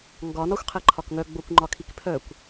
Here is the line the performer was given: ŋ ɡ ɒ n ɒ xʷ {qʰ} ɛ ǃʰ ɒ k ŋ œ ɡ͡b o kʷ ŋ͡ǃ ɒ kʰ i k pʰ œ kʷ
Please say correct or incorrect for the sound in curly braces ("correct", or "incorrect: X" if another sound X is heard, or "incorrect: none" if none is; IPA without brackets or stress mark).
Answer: correct